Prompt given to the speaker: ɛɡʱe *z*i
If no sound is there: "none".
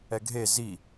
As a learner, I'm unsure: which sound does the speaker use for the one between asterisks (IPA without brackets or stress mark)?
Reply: z